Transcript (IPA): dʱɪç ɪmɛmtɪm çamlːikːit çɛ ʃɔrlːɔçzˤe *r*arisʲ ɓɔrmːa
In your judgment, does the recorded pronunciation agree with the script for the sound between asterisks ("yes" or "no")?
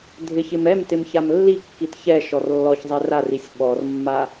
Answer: yes